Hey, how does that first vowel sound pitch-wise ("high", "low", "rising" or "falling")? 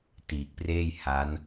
low